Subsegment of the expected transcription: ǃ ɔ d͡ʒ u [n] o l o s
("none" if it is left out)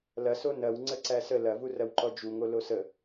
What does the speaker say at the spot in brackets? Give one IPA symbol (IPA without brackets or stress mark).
ŋ